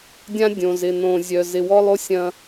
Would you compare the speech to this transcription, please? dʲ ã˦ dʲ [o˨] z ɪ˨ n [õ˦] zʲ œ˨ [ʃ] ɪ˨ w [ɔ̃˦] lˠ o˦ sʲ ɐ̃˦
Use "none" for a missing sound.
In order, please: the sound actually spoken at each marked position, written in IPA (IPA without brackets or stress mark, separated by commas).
õ˨, õ˨, z, ɔ˦